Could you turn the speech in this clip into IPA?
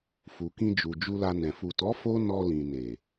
f u˨ k ĩ˧ d͡ʒ u˨ d͡ʒ u˧ l a˧ n ɛ̃˨ f u˨ t ɔ˨˦ f o˦ n ɔ˧ l ĩ˨ n e˨

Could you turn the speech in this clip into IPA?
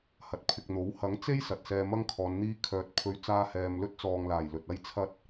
h ɐ˨ t̚ pʰ ɪ˨ k̚ n̪ o˨˥ w h ɐ˨˥ ŋ t͡s e˥ j s ɐ˨ t̚ s ɛː˧ m ɐ˥ ŋ kʰ ɔː˨˧ n n̪ iː˧ kʰ œː˨ t̚ pʰ ɵ˧ ɥ t͡s aː˧ h ɛː˨ m l ɵ˥ t̚ t͡s ɔː˨ ŋ l aː˨˩ j l ɵ˨ t̚ ɐ˥ j t͡sʰ ɐ˥ t̚

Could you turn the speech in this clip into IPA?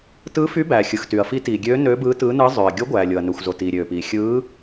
t ɯː˧˥ f y˧˥ b æː˩ xʲ ɯ˩ x t y˩ ɐ̯ f i˧˥ t iː˩ ɡʲ øː˧˥ n øː˧˥ b ɯː˧˥ t ɯː˧˥ n ɯː˧˥ zˤ øː˩ ɐ̯ ɡʲ o˧˥ ɡʷ æː˩ lʲ o˩ ɐ̯ n ø˩ xʷ z o˩ t iː˩ ɾʲ øː˩ p iː˩ xʲ ɯː˧˥

